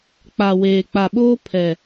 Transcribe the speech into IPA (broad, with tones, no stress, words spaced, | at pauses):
k͡pa˨weː˨k͡pa˨ɓoː˦ pʰɛ˨